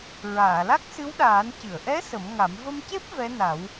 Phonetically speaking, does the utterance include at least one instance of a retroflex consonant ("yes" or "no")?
no